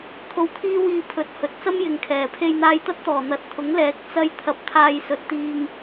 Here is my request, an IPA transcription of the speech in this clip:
t̪ʰ o˧ w t̪ʰ iː˥ w iː˧ pʰ ɵ˨˥ t̚ h ɵ˨ t̚ t͡s ɐ˥ m j ɪ˨ ŋ kʰ ɛː˨˩ pʰ e˧ j n̪ aː˧ j t̪ ɐ˥ t̚ t̪ ɔː˨˩ n̪ ɐ˨˥ t̚ t̪ʰ ʊ˨˥ ŋ l ɛː˨˥ k̚ t͡s ɐ˥ j t̪ʰ ɐ˧ p̚ t̪ʰ aː˧ j s ɵ˨ t̚ t̪ iː˧ ŋ

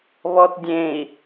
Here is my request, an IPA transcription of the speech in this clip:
β ɔ t dʲ ẽ i̯

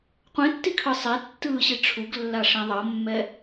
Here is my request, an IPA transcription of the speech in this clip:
qʷ ẽ tː i kʰ ɯ sˤ ɛ tː ɯː ɕ i ʈ͡ʂʰ u ɡ lː a ʂ ẽ ðˤ ʌ mː ɛ

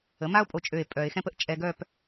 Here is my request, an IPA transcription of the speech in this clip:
ə˩˥ m a˥ o̯ pʼ o˧ t͡ʃʼ ø˧˩ e̯ pʼ œ˨˩˦ e̯ x ɛ̃˥ p ə˥ ʔ t͡ʃʼ ɛ˧ ɡ œ˥˧ p

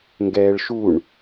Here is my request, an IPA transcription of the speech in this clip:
ŋ ɡ ɛː ɭ ʃ u ɳ

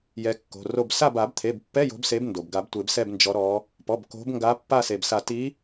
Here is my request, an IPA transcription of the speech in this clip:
j ɛ˨˦ kː o̤˩˧˩ r o˦˨ b s a˦˨ b a˨˩˦ b t̪ʰ e˩˧˩ b pː ɛ˧˥˧ j o̤˨˦ b s e˨˦ b n d o˩ b ɡ a˨˩˦ b tʷ e˨˩˦ b s ɛ˦˨ b n d͡ʒ ɔ˨˦ ɾ ɔ˨˦ | p ɔ˩˧˩ b k o̤˨˦ b ŋ ɡ a˨˦ pː a˦˨ s e˩ b s a˨˩˦ t i˨˦

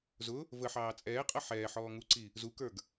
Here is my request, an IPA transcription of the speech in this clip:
z ʊ | v ə ħ ɑː t͡sʼ ɛː qʼ ʌ ħ ɛː ħ ɔː ŋ u ǀ i | z u k ə˞ ɡ

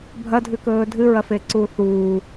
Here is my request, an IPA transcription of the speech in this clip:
bʱ ɐ dʱ ʉ k ɵː dʱ ɨ ɹ ɐ f e ǀ uː θ uː

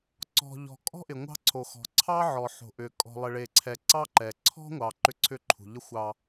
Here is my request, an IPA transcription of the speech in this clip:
ǀ ɔ̤˨ ʎ ɔ̤˨ kʼ ɔ̤˦ ʔ ɪ˨ ŋʷ ɑ̤˦ ǀʰ o˨ x ɔ̤˨ ǀʰ ɑ˦ ʕ ɔ˨ ħ o̤˨ ʔ ʏ˨ kʼ ɔ̤˨ lˠ ɪ˨ ɭ e˨ ǀʰ ɛ˨ ǀ ɑ˦ ǃ ɛ˨ ǀʰ ɔ̤˦ ŋʷ ɑ˨ ǃ ʏ˦˨ ǀʰ ʏ˦ ǃʰ ṳ˨ ʎ ə˦ xʷ ɑ˦

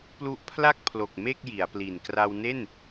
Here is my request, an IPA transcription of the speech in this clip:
p l u˦˥ ʔ pʰ l a˥˩ k̚ pʰ l o˨˩ k̚ m e˥˩ k̚ j i˩˦ a̯ p l i˨˩ n k r a˧ w n e˥˩ n

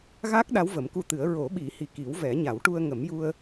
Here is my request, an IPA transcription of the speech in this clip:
ɣ a˦˥ k̚ ɗ a˧˥ w v ə˨˩˦ m k u˧ t̪ ɨ˨˩˦ ə̯ ɹ o˨˩˦ ɓ i˨˩˦ h i˨˩ k i˨˩˦ w v ɛ˨˩˦ ɲ a˨˩˦ w ʈ u˧ ə̯ ŋ ə˨˩˦ m j u˧ ə̯

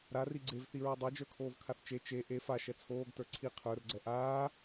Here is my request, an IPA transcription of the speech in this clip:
ɾ a r i ɡ͡ǀ e v θ i ɹ o dˤ ɛ d͡ʒ ə˞ kʰ oː v kʰ a θ t͡ʃ e t͡ʃ e ʔ e f a ʃ ɛ t͡sʰ oː ɡ t ə˞ ǀʰ i qʰ ə˞ r ɡ͡ǀ ɛ ʔ aː

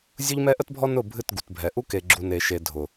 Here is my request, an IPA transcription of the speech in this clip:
zʲ ʊ˦ ʎ m ɛ˦ ʔ ə˦ t bʱ ɔ˦ n ʊ˦˨ bʱ ɨ˦˨ t ɡ u˨ t bʱ ɛ˨ ʔ u˦ k e˨ ɡ͡ǁ u˨ n e˨ ʃ e˨ dʱ ʊ˨

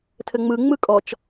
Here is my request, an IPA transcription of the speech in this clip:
tʰ ɘ ŋ͡m ɯ ŋ͡m ɯ kʼ ɔ t͡ʃ

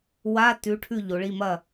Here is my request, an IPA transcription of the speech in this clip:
w a˧˥˧ t ʉ˨˦ ʈʰ ʉ˦˨ ʎ o˨˦ ɭ i˧˥˧ m ɐ˦˨

